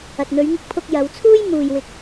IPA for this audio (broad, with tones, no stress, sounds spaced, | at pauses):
ɐ˨ t̚ n̪ ɵ˨˧ ɥ ŋ ɪ˧ k̚ pʰ ʊ˧ k̚ j ɐ˨˧ w t͡sʰ uː˥ j m uː˨ j w ɪ˨ k̚